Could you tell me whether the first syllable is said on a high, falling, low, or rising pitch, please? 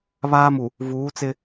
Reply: high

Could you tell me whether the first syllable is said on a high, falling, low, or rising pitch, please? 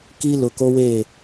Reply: high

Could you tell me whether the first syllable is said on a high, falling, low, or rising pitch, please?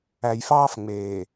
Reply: low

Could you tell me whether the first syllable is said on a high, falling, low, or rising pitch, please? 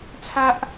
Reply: high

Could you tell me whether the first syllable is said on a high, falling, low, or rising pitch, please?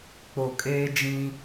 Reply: low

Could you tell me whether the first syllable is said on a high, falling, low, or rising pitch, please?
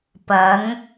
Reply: rising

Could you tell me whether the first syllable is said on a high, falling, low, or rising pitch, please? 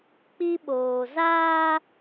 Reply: high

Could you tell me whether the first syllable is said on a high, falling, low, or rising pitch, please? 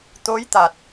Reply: rising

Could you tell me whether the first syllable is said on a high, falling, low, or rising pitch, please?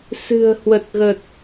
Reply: low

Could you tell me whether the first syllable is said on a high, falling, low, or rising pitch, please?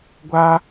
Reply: high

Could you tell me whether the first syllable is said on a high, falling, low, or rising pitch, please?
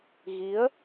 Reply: rising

